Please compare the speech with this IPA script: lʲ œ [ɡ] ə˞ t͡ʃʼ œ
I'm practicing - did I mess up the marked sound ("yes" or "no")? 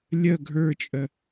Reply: yes